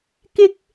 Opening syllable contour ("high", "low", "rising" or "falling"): high